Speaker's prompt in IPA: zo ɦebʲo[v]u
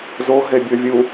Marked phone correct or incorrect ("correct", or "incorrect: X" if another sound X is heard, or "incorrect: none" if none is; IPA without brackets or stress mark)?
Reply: incorrect: vʲ